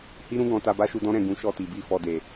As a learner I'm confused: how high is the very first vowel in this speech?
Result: high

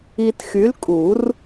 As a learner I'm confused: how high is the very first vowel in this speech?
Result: high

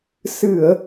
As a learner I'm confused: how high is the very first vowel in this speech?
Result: high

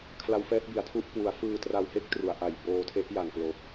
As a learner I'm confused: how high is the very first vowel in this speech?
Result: low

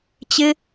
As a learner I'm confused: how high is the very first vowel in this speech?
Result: high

